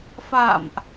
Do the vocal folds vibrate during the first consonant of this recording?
no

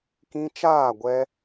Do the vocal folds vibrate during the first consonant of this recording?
no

